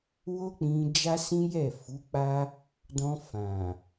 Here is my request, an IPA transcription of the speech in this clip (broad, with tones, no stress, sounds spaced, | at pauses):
w o˦ k͡p ĩ˧ d͡ʒ a˦ s ĩ˦ j ɛ˦˨ f u˨˦ k͡p a˦ | d ɔ̃˧ f ã˨